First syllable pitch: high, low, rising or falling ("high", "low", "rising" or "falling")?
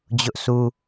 high